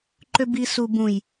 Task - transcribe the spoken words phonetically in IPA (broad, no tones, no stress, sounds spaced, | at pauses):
ǃ ø b i s u b ũ j